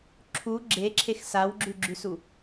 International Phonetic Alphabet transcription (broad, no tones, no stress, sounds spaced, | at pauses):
ǁʰ u ɡ͡ǁ e ǁʰ e x s a w ɡ͡ǁ ʉ ɡ͡ǁ ʉ s u